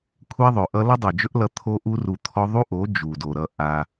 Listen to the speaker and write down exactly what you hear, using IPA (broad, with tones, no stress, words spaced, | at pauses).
kʷʰɛ˦ðˤɵ˨ʔʌ˦ lʌ˦dˤo˨d͡ʒɵ˦ʔ lʌ˧ t̪ʰo˦ʔu˦ru˧t̪ʰɔ˦ ðˤu˦ʔo˨˦ d͡ʒu˨do˨ɾʌ˧ ʔa˧